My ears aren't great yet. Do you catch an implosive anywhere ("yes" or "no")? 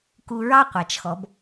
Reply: no